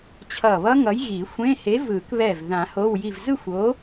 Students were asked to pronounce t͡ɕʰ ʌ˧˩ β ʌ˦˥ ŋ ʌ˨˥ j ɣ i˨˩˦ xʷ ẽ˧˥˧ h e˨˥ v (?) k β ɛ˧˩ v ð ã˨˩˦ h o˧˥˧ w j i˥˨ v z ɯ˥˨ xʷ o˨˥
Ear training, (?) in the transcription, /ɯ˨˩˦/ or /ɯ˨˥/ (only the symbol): ɯ˨˩˦